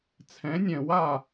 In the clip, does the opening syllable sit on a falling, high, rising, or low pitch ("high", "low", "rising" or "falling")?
rising